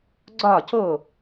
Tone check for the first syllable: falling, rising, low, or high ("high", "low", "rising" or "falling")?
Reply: falling